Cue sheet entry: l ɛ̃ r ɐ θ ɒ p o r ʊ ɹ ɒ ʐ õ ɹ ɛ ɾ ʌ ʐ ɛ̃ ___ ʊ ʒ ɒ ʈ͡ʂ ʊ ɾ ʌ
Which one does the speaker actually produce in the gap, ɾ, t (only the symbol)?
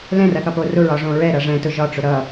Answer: t